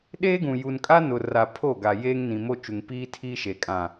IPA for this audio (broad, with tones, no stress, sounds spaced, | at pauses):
ɗ eː˦ ɡ ũ˨ j u˨ n kʼ a˦ n ʊ˨ r a˨ pʰ o˦˨ ɡ a˨ j eː˦ ŋ n ĩ˨ m o˦ t͡ʃ u˨ ŋ p iː˦ tʰ iː˦ ʃ e˨ kʼ ã˨